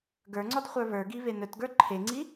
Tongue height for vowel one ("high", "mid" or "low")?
mid